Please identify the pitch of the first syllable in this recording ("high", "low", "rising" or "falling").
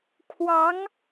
rising